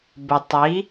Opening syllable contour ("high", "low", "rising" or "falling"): low